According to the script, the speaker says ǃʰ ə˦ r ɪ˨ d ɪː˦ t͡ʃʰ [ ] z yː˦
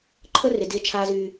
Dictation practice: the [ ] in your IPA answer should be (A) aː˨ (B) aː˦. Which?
B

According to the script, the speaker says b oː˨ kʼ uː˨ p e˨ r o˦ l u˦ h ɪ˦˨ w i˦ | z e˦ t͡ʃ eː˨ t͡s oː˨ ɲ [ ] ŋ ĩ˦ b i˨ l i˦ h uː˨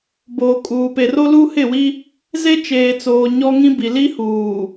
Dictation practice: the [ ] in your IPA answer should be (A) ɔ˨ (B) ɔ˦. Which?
B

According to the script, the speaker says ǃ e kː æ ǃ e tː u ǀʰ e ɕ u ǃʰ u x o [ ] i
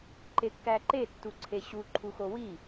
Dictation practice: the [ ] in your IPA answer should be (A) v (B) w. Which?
B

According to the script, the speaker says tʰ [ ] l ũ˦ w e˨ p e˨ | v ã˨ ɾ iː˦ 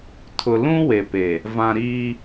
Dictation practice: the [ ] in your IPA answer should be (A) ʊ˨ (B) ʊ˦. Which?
A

